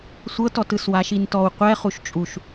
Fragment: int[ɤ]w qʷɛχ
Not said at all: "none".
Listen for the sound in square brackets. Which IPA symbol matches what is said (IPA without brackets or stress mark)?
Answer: ɔ